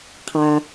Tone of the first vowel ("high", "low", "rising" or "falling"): low